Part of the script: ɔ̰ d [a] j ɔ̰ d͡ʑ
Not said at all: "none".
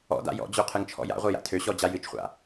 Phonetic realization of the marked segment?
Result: a̰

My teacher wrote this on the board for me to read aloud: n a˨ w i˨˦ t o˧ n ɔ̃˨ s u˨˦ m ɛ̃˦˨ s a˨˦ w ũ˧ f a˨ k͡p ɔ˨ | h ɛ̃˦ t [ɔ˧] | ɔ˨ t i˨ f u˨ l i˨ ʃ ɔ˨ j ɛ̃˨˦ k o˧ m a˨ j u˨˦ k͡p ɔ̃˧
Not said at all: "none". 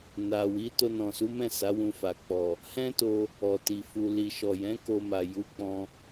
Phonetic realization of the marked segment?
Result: o˧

